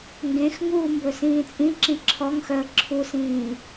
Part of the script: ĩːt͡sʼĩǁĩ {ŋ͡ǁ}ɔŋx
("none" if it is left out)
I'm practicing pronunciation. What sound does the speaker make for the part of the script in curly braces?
ǁʰ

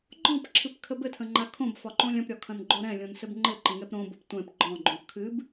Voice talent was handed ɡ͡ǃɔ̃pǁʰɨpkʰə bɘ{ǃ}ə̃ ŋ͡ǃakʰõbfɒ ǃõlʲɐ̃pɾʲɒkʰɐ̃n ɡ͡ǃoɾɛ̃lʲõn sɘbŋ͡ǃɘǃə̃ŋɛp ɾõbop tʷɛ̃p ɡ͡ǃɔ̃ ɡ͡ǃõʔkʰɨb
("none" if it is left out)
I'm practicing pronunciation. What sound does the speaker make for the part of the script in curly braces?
tʰ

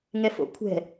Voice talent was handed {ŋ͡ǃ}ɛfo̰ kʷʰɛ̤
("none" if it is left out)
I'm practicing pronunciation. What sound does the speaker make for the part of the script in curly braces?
ŋ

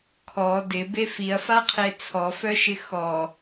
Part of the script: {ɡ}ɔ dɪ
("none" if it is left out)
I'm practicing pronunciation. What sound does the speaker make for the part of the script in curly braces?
kʰ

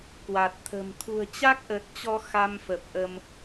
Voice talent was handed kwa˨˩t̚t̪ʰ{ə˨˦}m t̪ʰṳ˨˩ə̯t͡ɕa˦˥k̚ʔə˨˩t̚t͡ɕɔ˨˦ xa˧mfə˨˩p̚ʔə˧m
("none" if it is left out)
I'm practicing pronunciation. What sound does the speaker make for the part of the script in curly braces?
ə̤˨˩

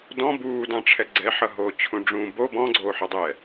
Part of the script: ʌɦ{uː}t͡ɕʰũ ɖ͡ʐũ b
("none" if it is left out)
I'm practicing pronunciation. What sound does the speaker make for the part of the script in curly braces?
oː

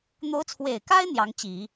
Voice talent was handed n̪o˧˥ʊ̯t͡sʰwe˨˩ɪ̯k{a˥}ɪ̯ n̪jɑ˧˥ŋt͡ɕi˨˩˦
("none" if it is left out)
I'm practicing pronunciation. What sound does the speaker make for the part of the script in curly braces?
a˥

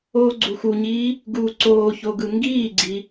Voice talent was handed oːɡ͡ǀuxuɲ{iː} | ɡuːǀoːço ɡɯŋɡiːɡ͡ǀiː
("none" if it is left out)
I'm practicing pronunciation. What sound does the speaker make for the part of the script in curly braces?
iː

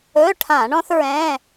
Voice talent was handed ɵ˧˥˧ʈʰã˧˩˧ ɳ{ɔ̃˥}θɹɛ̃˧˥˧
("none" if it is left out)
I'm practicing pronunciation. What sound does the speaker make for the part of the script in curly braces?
ɔ̃˥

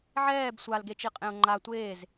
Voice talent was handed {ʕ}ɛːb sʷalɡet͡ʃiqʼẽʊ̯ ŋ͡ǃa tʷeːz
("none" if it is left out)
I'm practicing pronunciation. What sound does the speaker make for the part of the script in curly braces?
ʕ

